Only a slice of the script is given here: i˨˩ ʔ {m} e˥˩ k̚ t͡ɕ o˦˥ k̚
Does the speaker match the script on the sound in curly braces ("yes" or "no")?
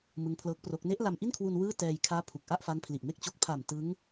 yes